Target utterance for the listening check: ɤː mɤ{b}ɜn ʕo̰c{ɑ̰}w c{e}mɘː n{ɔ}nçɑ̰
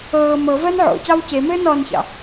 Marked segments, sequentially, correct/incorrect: incorrect, incorrect, correct, correct

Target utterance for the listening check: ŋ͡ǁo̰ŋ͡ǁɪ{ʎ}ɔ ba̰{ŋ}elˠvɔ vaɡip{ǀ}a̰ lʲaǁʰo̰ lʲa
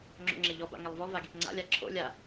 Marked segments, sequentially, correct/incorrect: correct, correct, incorrect

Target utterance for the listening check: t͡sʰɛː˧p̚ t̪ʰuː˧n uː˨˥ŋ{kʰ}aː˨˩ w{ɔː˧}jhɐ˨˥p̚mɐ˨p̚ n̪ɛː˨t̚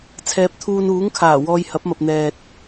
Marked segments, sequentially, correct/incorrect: correct, correct

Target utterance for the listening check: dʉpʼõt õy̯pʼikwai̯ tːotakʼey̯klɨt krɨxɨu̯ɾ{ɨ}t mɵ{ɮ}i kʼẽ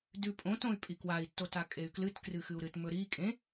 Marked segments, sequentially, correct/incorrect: correct, incorrect

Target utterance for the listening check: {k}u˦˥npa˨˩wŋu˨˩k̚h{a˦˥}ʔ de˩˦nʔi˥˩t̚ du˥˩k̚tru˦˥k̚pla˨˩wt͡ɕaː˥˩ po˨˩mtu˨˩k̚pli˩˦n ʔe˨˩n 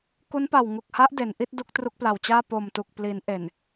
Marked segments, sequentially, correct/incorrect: correct, correct

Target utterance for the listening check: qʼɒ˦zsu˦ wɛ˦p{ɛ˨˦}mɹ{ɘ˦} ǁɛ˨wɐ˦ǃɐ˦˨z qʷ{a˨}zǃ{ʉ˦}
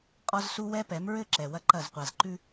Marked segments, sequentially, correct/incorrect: correct, correct, correct, correct

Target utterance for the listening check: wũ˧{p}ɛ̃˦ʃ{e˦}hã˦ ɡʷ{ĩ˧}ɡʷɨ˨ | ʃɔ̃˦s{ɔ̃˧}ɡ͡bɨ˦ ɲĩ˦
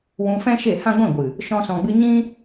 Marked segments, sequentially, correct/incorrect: incorrect, incorrect, incorrect, correct

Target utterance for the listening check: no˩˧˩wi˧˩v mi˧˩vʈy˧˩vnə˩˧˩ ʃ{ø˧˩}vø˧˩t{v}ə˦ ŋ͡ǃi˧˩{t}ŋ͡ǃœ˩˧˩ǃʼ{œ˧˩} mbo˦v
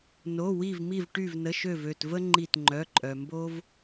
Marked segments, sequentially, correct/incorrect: correct, correct, correct, incorrect

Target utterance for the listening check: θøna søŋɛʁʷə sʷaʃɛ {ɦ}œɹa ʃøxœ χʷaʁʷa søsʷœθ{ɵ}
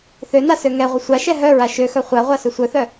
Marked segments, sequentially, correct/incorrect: correct, incorrect

